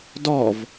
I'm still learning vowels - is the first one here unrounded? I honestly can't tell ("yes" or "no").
no